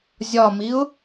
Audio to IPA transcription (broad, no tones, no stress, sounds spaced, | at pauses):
zʲ ɒ m i ʊ̯